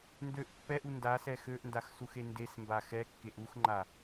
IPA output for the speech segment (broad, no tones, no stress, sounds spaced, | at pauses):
n d ø ʔ pː ɛ ʔ u n d a s ɛ x ø ʔ n d a x s u x e n d e s m b a x ɛ kː e ʔ u x ŋ͡ǃ a